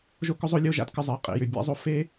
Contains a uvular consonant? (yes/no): yes